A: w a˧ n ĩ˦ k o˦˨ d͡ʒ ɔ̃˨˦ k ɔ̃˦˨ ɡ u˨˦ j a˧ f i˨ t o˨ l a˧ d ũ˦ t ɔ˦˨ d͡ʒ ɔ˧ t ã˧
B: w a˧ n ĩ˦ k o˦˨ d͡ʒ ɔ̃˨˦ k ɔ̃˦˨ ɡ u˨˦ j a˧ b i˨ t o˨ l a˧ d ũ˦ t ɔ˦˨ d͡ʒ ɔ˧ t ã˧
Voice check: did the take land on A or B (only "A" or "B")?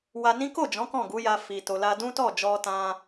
A